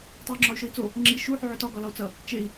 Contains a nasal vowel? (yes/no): no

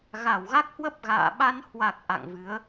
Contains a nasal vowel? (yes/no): no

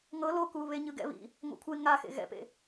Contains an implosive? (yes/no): no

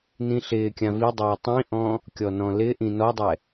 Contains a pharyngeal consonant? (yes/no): no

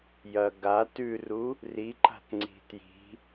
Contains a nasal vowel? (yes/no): no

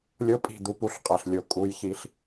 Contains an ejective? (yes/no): yes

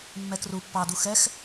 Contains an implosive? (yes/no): no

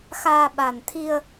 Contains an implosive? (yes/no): yes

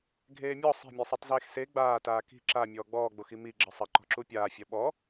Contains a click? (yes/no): yes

